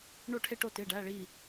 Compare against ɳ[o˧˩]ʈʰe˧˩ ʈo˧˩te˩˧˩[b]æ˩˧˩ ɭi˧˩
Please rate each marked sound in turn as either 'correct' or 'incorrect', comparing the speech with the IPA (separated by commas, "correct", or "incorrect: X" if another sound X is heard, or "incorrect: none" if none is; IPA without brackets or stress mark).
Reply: correct, incorrect: ɖ